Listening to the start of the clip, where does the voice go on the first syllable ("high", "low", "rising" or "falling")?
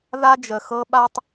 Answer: high